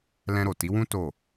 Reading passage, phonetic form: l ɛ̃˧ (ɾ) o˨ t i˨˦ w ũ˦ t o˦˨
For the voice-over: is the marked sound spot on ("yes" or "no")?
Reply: yes